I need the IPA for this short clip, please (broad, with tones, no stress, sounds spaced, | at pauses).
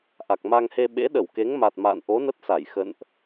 ʔ a˨˩ k̚ m a˧ ŋ h e˧ ɓ ḛ˧˥ ɗ ə˧˩ w k e˨˦ ŋ m a˨˩ t̚ m a̰˧˨ n ʔ o˨˦ n ə˦˥ t̚ s a˧˩ j x ə̰˧˨ n ʔ